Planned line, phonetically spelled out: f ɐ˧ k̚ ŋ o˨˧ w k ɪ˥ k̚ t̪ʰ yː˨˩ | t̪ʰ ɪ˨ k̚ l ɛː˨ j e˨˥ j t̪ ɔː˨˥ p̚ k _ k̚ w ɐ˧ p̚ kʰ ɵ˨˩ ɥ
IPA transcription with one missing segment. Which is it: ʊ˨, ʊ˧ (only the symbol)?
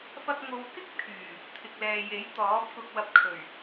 ʊ˧